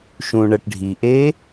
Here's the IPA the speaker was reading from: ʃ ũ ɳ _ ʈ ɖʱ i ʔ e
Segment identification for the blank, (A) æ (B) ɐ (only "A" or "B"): B